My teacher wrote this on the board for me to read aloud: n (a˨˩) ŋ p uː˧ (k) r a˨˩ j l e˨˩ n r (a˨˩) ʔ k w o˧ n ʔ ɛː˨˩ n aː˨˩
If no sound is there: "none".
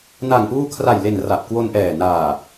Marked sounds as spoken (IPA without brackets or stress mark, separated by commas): a˨˩, kʰ, a˨˩